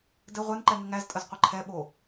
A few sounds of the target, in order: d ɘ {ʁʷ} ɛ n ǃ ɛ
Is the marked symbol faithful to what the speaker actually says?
yes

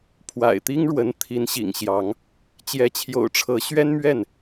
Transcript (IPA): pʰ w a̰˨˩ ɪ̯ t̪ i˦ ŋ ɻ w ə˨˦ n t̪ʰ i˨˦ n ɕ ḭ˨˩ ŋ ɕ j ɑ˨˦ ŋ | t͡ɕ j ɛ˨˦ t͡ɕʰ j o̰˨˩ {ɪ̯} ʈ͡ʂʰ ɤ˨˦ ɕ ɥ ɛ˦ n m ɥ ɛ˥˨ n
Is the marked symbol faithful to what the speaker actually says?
no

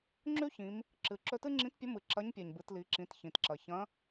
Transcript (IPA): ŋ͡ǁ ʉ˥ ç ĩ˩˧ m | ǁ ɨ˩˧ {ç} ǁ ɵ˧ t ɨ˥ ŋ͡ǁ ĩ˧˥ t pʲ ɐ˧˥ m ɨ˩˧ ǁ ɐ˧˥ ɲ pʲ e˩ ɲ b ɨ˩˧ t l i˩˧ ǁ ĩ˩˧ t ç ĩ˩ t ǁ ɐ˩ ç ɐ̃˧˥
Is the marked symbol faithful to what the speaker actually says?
no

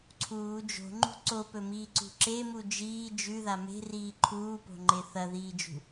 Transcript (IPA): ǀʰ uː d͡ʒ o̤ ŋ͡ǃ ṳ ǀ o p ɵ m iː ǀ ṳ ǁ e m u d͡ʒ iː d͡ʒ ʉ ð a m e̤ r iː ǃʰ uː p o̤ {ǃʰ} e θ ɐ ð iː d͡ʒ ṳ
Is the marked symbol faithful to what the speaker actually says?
no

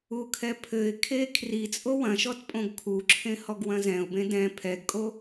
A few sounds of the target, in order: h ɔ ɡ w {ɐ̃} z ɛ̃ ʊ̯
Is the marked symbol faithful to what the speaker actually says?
yes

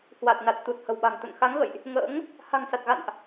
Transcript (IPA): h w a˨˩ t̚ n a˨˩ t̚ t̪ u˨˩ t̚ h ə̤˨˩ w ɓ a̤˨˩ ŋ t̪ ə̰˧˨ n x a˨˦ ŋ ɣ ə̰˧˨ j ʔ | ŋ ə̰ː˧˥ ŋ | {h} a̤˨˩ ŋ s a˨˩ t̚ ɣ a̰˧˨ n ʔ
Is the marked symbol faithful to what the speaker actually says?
yes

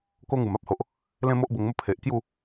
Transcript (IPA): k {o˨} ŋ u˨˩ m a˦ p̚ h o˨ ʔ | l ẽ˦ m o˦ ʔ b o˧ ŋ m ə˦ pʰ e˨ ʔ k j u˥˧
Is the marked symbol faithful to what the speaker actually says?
no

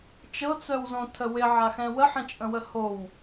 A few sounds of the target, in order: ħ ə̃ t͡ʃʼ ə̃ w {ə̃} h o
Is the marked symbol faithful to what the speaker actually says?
no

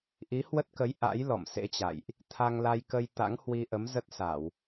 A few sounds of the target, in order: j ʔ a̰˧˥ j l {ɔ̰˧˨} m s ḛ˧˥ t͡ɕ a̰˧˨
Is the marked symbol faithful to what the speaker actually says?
yes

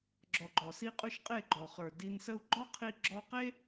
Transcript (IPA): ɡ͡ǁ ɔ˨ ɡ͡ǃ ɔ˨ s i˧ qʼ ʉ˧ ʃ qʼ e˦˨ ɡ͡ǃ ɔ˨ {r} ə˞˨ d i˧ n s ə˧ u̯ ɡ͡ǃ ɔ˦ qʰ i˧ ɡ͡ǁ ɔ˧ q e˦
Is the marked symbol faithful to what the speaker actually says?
no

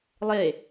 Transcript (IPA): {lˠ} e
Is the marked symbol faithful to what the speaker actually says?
yes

